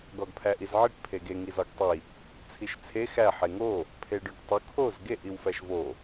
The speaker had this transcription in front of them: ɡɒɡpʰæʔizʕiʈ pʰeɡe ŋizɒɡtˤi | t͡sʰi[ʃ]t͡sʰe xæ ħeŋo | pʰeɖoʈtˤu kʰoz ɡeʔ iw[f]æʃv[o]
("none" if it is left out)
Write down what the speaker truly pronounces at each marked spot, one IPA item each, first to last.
ʃ, f, o

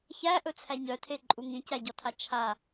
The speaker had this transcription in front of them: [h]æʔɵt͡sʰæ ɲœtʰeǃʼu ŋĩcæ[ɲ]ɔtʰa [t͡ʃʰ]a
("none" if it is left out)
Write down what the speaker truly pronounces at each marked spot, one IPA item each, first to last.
ç, ɟ, t͡ʃʰ

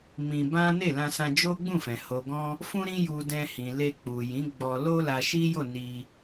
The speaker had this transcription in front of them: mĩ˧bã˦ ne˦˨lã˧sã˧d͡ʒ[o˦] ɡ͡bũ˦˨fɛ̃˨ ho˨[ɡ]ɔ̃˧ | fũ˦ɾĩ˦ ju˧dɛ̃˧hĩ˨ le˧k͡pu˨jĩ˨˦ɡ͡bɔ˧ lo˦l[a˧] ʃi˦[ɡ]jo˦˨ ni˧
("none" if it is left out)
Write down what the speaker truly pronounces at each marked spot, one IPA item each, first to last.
o˦, ɡ, a˧, none

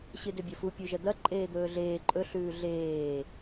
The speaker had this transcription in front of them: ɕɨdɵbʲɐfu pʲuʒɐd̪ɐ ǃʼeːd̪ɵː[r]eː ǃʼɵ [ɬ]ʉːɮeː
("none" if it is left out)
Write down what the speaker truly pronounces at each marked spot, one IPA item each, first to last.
ɮ, ɬ

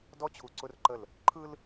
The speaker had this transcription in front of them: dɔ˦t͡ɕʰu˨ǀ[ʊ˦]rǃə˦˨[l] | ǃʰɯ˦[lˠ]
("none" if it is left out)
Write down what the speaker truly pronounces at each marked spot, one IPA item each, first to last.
ʊ˦, l, l

